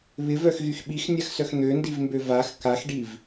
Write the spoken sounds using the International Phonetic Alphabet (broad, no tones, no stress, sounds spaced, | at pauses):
β ɪ v œ x ɣ y x ɓ i x nʲ a x s œ x n̪ ø n d i v m b ø v a x k a x ɖ i v